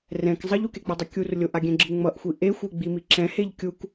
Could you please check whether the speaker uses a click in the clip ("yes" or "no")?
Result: yes